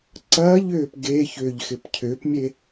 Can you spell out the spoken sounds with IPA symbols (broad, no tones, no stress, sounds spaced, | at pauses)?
ǀ ɐː ʎ ʏː p ɡ e ç ʏː ʎ x ɪ p cʰ ʏː p mʲ e